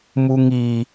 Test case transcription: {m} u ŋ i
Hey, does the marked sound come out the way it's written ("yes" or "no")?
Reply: yes